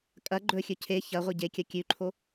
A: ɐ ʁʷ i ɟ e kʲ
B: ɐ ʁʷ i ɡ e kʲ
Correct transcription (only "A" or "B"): A